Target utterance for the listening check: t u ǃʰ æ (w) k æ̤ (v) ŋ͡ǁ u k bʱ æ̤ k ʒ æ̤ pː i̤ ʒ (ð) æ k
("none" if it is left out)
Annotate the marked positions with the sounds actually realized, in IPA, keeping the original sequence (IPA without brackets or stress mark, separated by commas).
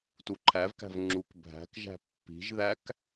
v, v, ð